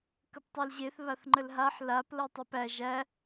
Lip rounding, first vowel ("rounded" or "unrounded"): unrounded